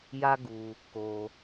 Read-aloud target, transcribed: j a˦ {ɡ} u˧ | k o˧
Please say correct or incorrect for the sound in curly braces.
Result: correct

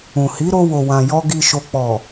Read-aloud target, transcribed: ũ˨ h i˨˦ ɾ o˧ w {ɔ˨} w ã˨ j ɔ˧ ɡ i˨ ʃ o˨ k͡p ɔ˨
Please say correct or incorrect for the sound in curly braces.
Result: incorrect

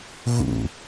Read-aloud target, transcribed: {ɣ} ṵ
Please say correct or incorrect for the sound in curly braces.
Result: correct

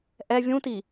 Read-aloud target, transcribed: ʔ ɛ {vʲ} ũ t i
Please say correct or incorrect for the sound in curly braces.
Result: correct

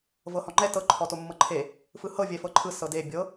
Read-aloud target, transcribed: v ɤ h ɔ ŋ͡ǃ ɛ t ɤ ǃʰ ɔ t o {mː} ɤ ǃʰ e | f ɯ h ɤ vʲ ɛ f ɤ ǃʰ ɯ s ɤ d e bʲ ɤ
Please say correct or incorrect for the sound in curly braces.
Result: correct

